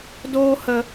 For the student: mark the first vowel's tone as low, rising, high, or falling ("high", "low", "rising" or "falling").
high